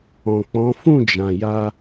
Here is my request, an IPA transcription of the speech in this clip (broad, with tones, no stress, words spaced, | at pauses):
ɔ̃˨k͡pɔ̃˨˦ fũ˦˨d͡ʒã˨ja˧